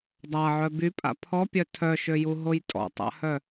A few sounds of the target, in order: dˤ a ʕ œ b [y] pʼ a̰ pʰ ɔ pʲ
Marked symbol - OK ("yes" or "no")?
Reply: yes